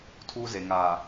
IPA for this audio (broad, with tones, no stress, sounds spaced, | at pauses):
tʰ uː˦ z e˨ ŋ aː˨